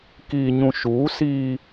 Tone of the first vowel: low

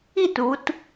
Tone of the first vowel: falling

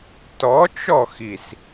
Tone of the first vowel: rising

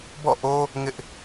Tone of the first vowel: falling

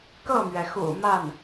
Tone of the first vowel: falling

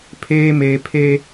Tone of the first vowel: high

